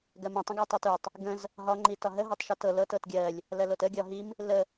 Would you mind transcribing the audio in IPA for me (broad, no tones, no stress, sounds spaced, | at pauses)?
ɡ ɜ m ĩ tˤ ə̃ ɡ ɜ tˤ o t u tˤ | ɡ ə̃ z | ɦ ɒ ŋ͡ǃ i t ɒ ɦ ə ɦ ɜ tˤ ʃ o t ɤ l ɤ t ɤ t ɡʲ ɜ lʲ | l ɜ l o t ə ɡʲ ɒ ɦ i m | l ə